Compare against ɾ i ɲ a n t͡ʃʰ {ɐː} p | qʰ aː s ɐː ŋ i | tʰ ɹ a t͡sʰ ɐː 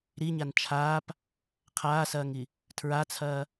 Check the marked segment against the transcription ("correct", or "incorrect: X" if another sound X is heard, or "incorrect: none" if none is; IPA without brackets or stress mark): incorrect: aː